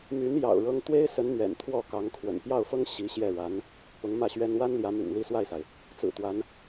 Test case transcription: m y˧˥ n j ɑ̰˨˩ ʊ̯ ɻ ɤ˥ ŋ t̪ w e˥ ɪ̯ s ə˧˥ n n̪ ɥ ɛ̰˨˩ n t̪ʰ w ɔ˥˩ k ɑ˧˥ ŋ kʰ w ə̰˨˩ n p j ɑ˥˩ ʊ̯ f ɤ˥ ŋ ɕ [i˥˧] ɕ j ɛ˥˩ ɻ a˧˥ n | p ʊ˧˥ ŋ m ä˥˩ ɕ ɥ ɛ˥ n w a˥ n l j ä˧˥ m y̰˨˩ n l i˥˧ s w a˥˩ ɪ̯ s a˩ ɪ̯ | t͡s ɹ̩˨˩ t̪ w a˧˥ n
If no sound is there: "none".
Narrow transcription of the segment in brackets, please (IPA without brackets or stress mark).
i˧˥